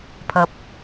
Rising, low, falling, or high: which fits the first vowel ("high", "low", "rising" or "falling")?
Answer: high